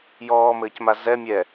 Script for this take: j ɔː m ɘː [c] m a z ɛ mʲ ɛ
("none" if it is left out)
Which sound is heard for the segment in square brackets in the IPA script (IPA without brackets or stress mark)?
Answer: c